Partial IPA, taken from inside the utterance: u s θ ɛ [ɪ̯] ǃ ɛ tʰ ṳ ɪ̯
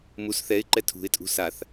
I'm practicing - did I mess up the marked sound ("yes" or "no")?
no